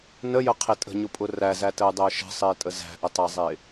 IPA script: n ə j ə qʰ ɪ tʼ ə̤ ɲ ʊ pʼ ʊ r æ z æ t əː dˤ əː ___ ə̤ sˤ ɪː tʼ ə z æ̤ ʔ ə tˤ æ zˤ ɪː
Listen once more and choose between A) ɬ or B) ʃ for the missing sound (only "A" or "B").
B